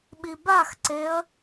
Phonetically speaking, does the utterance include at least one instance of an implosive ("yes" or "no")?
yes